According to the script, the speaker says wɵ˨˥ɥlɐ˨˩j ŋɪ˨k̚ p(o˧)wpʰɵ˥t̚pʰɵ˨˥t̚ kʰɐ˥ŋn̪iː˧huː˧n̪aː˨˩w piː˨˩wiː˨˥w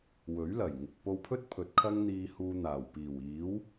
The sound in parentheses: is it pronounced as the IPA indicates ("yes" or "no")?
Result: yes